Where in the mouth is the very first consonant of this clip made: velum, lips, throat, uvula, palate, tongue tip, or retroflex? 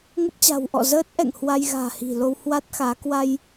velum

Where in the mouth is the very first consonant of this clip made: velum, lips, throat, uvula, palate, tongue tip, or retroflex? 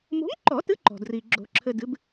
lips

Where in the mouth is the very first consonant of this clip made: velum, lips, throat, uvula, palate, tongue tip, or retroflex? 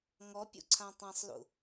velum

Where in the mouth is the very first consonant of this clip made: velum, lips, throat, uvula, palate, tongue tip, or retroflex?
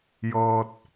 palate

